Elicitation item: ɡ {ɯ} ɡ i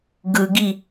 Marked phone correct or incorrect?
correct